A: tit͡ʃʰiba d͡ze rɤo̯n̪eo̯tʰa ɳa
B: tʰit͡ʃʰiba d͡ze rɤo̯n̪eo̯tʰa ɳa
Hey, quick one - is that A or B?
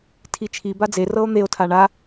B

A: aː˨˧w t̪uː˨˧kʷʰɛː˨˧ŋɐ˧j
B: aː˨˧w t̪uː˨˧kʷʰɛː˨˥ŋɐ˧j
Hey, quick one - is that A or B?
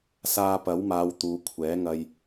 B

